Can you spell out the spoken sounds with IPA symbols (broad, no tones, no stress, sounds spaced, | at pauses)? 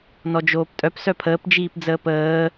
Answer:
n ɔ d͡ʒ oː p tʼ œ p s œ pʰ əː p d͡ʒ iː p d͡z əː p əː